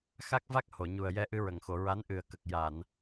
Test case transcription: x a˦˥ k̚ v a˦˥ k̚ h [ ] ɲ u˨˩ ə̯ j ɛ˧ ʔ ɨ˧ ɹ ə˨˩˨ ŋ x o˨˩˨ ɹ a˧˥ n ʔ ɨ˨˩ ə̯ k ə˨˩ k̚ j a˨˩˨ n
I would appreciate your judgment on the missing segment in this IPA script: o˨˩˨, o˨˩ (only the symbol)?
o˨˩˨